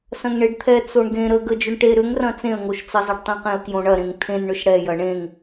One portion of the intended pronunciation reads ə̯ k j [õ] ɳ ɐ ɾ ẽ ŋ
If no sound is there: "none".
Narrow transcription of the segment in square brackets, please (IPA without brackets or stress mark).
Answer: õ